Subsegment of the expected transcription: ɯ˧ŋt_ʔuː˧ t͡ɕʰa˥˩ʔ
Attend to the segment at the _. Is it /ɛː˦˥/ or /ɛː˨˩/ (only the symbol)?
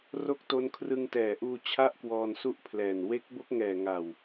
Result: ɛː˨˩